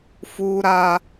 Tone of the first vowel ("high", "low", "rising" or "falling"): high